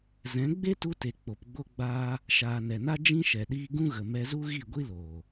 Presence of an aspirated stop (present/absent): absent